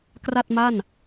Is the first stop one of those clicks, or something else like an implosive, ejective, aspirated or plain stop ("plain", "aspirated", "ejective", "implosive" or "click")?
plain